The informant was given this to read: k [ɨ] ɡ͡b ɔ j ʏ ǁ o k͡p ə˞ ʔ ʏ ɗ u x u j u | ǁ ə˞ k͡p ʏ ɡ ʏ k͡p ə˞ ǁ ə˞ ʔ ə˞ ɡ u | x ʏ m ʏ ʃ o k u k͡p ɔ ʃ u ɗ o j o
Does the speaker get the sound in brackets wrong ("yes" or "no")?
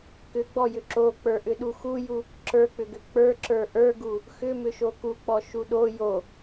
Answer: yes